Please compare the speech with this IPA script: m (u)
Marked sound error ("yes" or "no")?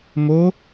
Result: yes